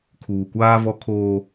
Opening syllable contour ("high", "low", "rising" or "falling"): low